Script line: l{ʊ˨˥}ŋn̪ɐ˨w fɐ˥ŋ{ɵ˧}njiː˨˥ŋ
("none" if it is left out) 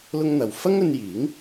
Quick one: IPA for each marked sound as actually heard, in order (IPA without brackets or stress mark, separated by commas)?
ʊ˥, ɵ˧